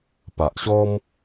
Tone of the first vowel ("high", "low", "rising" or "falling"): low